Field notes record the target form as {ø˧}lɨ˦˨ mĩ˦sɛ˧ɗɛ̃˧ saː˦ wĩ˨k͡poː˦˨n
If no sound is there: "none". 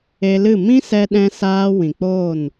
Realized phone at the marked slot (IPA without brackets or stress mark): e˧